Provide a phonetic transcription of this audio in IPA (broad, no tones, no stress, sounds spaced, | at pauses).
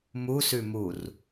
m u s ʉ m u r